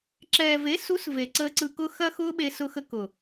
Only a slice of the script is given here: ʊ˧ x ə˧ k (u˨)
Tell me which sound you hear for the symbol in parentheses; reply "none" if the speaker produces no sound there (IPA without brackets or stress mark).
ʊ˨